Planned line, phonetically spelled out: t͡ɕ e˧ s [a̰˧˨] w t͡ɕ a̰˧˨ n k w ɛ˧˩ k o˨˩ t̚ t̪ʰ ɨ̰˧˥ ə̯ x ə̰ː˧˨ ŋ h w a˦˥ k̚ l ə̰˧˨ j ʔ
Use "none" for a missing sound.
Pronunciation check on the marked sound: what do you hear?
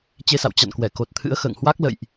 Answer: a̰˧˨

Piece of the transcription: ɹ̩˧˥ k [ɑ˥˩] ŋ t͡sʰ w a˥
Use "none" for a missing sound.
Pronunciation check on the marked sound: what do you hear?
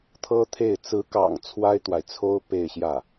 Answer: ɑ̰˨˩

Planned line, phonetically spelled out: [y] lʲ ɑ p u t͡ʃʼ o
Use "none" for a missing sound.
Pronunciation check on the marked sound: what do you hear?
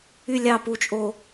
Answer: y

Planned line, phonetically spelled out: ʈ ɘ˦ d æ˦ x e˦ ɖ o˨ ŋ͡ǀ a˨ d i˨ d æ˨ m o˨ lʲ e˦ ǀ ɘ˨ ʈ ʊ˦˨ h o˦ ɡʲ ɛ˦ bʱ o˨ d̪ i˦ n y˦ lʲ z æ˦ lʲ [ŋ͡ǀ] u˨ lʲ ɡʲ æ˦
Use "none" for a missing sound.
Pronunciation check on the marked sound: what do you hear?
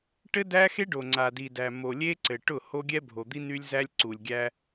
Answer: ǀ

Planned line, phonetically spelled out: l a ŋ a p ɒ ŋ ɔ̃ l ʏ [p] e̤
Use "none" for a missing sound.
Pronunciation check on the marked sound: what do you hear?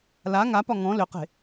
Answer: q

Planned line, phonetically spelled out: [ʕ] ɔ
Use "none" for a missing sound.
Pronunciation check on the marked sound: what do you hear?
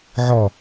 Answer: ʕ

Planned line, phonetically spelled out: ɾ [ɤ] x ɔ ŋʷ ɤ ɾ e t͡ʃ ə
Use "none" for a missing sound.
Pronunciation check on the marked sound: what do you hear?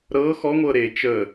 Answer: ɤ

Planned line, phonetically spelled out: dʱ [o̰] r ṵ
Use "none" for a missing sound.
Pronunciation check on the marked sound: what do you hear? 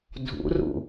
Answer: ṵ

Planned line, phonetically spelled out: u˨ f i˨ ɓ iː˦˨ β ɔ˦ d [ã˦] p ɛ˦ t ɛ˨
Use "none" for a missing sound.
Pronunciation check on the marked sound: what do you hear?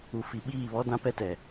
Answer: ã˦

